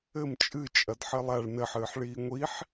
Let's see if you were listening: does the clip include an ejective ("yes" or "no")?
yes